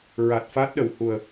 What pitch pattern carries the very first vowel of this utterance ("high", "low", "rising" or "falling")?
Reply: low